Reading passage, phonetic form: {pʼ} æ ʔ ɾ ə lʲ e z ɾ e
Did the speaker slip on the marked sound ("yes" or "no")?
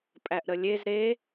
no